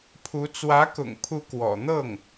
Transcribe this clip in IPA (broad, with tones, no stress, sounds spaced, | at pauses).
pʰ u˧˥ t͡s w ä˧˥ k ʊ̰˨˩ ŋ pʰ u˧˥ k w ɔ̰˨˩ n̪ ɤ˥˩ ŋ